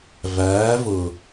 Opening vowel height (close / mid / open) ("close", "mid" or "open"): open